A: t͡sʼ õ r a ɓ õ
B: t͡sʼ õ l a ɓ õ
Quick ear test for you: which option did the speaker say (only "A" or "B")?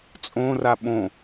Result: A